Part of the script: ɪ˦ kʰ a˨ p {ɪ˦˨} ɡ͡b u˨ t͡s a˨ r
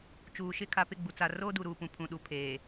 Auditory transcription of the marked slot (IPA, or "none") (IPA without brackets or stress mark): ɪ˦˨